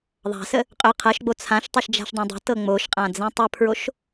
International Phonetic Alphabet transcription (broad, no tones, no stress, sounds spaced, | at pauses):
ðˤ a̤ s ə | qʼ ø qʰ ɤ ʃ ɡ͡b o t͡sʰ ã ʃ tˤ ʏ ʃ d͡ʒ a̤ ʃ dˤ ã dˤ ə̤ t ɤ ŋ͡m o ʃ qʼ ã d͡z ɛ̃ tˤ ə pʰ ɹ o ʃ